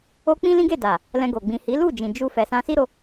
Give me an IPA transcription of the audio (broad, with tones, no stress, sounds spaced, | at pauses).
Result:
o˦ k͡p ĩ˦ l ĩ˦ ɡ e˦˨ d a˨ | l ɛ̃˧ ɡ o˨ ɡ͡b ĩ˨ h i˨˦ l u˦˨ d͡ʒ ĩ˨ d͡ʒ u˧ f ɛ˨ s ã˧ s i˦ ɾ o˧